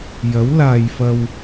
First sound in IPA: j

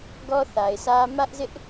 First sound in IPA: ɡ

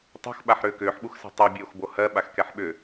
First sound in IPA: tˤ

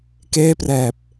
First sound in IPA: k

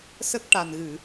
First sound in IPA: s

